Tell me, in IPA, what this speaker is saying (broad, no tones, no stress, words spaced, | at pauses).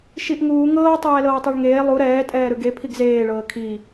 ʃiʔŋuː ŋɤː tˤɛːlɤːtˤɯɭŋeː lˠu ɾɛː tʼɛːɾɯɡe pʰiɡzeː ɭɤːkʰi